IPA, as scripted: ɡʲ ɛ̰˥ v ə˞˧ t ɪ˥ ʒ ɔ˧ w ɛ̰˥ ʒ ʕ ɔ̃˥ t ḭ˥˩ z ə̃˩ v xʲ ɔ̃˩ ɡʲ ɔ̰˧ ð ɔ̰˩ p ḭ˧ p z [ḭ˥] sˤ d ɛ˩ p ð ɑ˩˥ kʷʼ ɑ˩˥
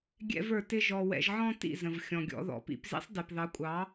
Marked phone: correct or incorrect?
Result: correct